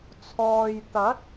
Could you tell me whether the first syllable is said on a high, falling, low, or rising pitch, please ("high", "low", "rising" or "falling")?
low